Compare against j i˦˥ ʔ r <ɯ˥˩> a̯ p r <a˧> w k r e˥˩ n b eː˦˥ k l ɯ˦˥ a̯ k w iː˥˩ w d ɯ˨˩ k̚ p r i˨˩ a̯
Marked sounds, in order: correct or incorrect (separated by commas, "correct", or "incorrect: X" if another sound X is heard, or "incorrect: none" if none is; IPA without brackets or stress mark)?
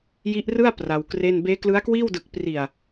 correct, correct